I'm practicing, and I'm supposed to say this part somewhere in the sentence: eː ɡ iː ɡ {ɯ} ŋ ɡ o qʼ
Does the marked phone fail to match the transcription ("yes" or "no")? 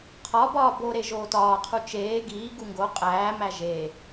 yes